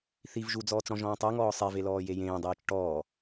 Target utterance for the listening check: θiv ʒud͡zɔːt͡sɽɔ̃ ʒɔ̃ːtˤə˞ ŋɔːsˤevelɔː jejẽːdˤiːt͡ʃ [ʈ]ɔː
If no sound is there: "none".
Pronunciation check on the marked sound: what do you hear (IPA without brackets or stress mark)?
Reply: ʈ